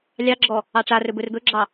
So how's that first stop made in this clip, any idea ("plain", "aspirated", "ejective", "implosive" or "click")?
click